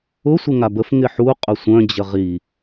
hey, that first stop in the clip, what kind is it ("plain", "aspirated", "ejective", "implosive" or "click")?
plain